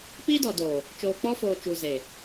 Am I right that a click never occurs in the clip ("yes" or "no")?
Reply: yes